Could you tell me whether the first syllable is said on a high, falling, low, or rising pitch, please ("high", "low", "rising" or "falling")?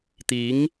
rising